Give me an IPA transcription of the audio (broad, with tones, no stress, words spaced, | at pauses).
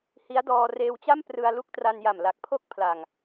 hi˦˥a̯dɔː˧ reː˧wt͡ɕa˥˩m prɯ˧a̯lu˦˥k̚tra˧nja˨˩m la˨˩k̚pʰo˥˩k̚pʰla˨˩ŋ